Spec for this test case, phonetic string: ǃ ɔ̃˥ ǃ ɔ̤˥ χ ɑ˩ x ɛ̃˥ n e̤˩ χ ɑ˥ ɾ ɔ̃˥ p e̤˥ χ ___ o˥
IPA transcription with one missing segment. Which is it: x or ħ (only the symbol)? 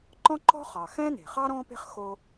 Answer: x